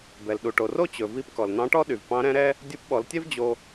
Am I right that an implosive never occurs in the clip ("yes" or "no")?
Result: no